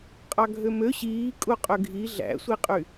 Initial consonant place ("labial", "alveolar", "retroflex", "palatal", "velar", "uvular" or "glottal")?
uvular